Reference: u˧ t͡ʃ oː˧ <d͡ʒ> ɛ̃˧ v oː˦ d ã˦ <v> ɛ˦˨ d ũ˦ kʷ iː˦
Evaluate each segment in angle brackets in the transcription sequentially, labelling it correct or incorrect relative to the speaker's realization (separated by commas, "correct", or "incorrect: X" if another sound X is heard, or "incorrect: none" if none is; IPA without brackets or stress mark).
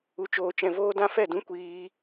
incorrect: t͡ʃ, incorrect: f